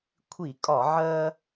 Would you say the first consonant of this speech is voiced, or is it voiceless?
voiceless